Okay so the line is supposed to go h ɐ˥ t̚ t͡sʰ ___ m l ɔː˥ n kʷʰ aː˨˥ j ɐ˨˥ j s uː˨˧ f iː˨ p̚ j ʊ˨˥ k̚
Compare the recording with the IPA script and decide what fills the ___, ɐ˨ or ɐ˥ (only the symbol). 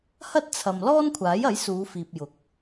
ɐ˨